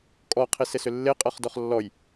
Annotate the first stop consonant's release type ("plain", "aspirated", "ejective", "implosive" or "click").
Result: ejective